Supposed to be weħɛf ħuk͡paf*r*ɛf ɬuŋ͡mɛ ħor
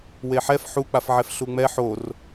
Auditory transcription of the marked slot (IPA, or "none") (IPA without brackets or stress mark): ʕ